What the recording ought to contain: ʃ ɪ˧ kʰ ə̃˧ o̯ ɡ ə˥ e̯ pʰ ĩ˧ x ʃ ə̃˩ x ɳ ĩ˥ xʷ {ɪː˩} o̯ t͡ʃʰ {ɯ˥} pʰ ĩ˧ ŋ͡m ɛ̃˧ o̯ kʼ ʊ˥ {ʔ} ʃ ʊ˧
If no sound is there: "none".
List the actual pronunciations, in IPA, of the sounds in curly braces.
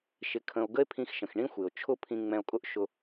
ɪ˩, ʊ˥, ʔ

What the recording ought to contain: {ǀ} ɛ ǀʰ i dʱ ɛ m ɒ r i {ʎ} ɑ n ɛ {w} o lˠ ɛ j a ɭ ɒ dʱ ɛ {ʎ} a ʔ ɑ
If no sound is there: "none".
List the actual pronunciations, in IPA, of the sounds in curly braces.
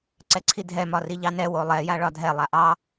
ǀ, ʎ, w, lˠ

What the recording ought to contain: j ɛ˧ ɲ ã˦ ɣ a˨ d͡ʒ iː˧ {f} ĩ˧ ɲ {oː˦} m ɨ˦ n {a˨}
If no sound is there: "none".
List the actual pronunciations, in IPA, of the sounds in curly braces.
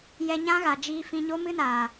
f, o˦, a˨

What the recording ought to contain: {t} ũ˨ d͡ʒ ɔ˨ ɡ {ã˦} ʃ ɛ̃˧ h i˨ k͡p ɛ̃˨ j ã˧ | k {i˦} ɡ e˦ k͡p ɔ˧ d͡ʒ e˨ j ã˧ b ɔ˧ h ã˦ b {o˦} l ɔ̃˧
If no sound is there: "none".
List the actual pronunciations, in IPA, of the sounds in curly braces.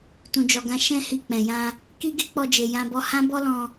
t, ã˧, i˦, ɔ˦

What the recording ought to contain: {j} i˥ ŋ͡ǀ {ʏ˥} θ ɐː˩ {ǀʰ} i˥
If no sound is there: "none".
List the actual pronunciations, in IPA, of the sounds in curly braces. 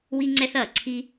w, ɛ˥, ǀʰ

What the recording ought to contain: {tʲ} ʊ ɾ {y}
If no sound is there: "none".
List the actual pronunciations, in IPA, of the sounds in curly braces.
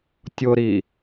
tʲ, i

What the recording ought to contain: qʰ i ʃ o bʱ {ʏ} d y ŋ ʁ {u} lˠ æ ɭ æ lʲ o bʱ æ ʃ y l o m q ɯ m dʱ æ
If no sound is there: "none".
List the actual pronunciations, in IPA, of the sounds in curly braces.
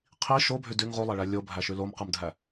y, u

